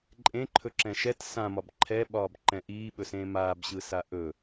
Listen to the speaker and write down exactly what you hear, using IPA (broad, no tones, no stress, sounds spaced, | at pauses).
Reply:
ǃʼ ẽ ǃʰ ɵ ǁ ɛ̃ ʃ ɛ t s ã m ɒ b ǃʰ ɛ ɓ ɒː b ǃ ɛ̃ ʔ iː ɓ ɵ s ẽː m aː b ɕ ɯ s a ʔ ɵ